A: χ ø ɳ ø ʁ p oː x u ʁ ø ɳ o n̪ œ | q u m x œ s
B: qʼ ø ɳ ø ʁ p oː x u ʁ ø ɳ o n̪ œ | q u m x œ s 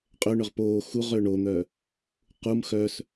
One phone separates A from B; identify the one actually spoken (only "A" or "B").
B